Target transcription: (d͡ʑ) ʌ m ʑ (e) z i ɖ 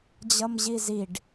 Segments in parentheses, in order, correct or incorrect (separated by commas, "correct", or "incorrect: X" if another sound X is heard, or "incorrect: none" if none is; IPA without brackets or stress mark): correct, incorrect: i